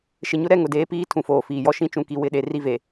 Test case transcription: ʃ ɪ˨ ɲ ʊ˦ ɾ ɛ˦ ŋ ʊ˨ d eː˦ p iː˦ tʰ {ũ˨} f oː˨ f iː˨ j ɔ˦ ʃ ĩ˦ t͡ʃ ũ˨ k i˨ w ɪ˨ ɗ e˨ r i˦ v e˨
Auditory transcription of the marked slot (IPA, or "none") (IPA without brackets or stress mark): ũ˨